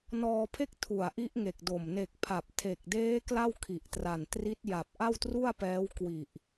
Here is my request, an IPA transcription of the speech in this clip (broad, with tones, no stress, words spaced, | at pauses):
nɔː˧pʰe˥˩k̚ tʰu˨˩a̯ʔi˦˥ʔŋe˨˩k̚ do˨˩m ne˨˩k̚ pʰa˨˩p̚tʰe˨˩k̚deː˦˥ kla˥˩wkʰi˨˩ʔtra˨˩ntri˦˥t̚ ja˨˩p̚ ʔa˥˩wtru˥˩a̯pɛː˦˥w kwi˨˩ʔ